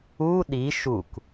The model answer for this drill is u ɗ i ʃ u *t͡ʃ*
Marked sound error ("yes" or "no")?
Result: yes